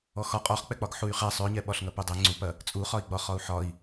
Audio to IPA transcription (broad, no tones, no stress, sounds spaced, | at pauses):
ɔ x ɒ qʼ ɒ χ k͡p ɛ k͡p ɒ ɡ ħ u y̯ χ ɛ sˤ ø ɲ ɛ ɓ ɒ ɬ ŋ ɐ p u dˤ ɛ ŋ͡ǀ u p ɐ | t͡sʼ u χ ɒ i̯ ɡ͡b ɒ χ ɒ u̯ ħ ɒ i̯